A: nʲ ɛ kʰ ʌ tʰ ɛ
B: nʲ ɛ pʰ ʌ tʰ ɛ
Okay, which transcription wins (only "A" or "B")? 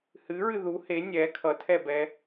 A